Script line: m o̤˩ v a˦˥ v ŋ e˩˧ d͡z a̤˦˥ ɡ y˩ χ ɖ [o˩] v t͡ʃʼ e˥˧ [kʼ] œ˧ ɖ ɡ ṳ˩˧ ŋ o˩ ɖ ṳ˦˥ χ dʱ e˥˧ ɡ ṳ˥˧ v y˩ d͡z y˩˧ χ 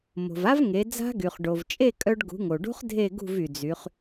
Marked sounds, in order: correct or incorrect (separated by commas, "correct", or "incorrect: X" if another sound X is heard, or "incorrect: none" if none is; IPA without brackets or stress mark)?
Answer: correct, correct